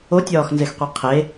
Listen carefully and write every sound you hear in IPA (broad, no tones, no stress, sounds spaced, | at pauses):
o tʲ ɒː x n z e x qʷ i qʰ e